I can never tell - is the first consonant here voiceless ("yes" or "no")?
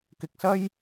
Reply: yes